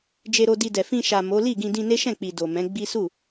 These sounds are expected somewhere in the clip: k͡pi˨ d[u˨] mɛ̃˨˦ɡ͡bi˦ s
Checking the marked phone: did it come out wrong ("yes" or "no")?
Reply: yes